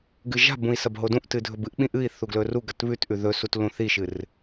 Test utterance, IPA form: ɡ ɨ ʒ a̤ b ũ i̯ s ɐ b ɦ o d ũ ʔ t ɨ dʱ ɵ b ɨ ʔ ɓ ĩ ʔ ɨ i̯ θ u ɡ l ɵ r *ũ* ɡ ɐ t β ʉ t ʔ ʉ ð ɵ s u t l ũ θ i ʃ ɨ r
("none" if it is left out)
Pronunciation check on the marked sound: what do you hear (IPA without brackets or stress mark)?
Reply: u